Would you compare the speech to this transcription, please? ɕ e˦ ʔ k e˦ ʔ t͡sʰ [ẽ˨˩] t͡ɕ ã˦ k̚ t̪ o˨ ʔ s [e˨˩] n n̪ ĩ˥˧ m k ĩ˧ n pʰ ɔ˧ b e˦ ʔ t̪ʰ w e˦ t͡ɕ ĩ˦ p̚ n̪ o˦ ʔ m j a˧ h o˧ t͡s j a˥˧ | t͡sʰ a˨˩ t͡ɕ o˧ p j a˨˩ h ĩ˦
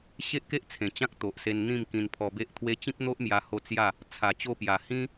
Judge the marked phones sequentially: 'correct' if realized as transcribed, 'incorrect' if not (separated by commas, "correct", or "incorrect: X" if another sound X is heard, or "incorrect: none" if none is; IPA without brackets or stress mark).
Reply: correct, incorrect: e˧